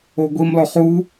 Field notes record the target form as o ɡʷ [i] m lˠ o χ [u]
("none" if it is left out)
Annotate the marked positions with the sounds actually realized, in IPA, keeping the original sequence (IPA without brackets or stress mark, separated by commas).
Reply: i, u